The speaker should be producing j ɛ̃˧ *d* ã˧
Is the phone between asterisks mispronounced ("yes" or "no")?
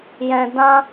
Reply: no